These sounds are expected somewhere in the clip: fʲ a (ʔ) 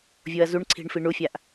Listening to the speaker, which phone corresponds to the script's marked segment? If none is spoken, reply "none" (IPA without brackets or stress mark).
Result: ʔ